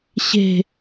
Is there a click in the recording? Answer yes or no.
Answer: no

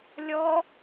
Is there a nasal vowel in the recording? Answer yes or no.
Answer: no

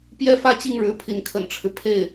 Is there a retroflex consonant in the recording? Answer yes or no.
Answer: yes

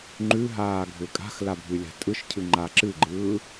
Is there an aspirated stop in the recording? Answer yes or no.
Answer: yes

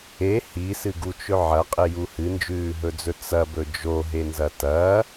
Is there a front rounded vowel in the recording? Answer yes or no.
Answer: no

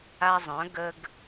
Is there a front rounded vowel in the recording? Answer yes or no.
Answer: yes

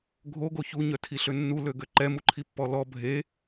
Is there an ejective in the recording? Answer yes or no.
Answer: no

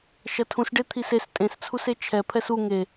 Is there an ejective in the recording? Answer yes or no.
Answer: yes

